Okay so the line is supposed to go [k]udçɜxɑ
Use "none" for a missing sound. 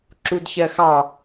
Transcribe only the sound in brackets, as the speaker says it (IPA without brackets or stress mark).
ǁ